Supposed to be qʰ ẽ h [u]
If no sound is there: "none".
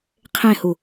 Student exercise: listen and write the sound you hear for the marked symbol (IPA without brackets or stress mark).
u